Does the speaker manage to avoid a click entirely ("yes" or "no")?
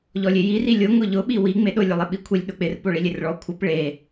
yes